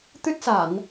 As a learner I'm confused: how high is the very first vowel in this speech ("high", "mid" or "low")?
high